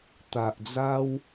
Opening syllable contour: low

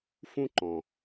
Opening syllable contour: high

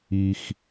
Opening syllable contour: low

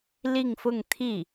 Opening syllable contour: falling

